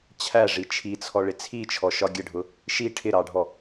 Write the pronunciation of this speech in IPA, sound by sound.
t͡ɕʰ æ ʐ i t͡ʃʰ i t͡sʰ ɔ ɭ ɪ t͡sʰ i t͡ʃʰ ɔ ʃ ɒ ɡʲ ə ɖʱ ʊ | ʃ i ʈʰ ɪ ɾ ɑ ɖʱ ɔ

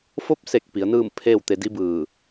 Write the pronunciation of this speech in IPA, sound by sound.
f o˧˥ p̚ s e˧˩ k̚ p i˩˧ ə̯ n ɯː˥˨ m pʰ eː˥˨ w t̪ e˧ d i˧˥ b ɯː˧˩

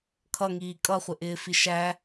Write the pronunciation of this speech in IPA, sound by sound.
kʰ ʌ ŋ iː kʼ ʌ χʷ ɪ ʔ ɪː f i ʃ æ

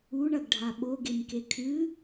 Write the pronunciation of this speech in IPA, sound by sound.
u ɳ ɐ ɡ ɖʱ a ɓ o ɡ e m k e kʰ ɨ

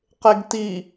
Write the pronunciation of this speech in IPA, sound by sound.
q e ɡ t i

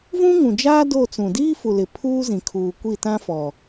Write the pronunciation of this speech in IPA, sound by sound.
v ũ˦ ŋ ũ˨ d͡ʒ aː˦ d o˦˨ t͡s ũ˨ d iː˦ f u˨ l ɪ˨ pʰ uː˦ z ĩ˨ kʰ uː˨ kʷ i˦˨ t ã˦ f ɔ˨

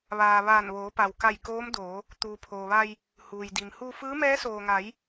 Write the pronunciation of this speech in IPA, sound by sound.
ʋ aː˩ ʋ aː˧˩ n ʋ oː˩˧ p a˩ w k a˧˩ j k oː˧˥ m d oː˩˧ | t̪ uː˩ pʰ oː˩ ʋ a˧ j | h uː˩ j d i˩ m h u˧ f ɯː˧˥ m ɛː˧˥ s oː˩ ŋ a˩˧ j

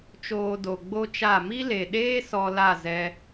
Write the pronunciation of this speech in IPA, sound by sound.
t͡ʃ oː˧ d o˨ ɡ͡b o˦ t͡ʃ a˦˨ m i˦ l e˨ ɗ eː˦ s ɔ˧ l a˦˨ z ɛ˧

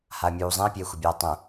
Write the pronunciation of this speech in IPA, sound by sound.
h a ɐ̯ mʲ uː zˤ ẽ ɐ̯ pʲ eː xʷ ɐ bʲ aː tˤ õ

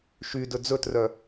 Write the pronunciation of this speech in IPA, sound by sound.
ʃ y d ɵ d͡z ɵ t r œ

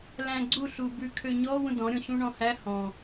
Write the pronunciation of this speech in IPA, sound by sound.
l æ̃ ɡ͡ǀ u ɬ u b ʉ kʰ ø ɲ ɔ w ũ d ɔ̃ ɾʲ ɔ̃ ɕ ũ ɳ ɔ̃ h æ h ɔ̃

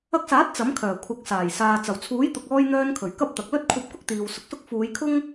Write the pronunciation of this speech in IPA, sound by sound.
ɐ˧ k̚ s aː˨˥ t̚ t͡s ɐ˨˥ m kʰ œː˨˩ kʷʰ ɐ˨˥ k̚ s aː˨˩ j s aː˨ t͡s ɐ˨˩ w t͡sʰ uː˨˥ j t̪ ʊ˨ k̚ ɔː˥ j n̪ œː˧ n kʰ ɵ˨˩ ɥ k ɐ˥ p̚ t̪ ɐ˨ k̚ l ɵ˥ t̚ kʷʰ ɐ˧ p̚ k ʊ˥ k̚ t̪ iː˨ w s ʊ˨ k̚ s ʊ˥ k̚ f uː˨˧ j kʰ ʊ˥ ŋ

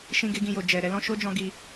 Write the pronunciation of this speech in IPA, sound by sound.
ʃ ĩ˦ ɡ e˦ ɡ ĩ˧ j o˨ d͡ʒ ɛ˨ ɾ ɛ˧ l ɔ̃˧ ʃ o˦ d͡ʒ ɔ̃˧ ɡ i˧

